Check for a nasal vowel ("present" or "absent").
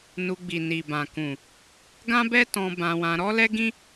present